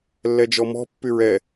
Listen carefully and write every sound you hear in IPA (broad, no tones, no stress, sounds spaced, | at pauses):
lː ɛ d͡ʒ ɔ m ɔ̤ pː y ɹ ɛ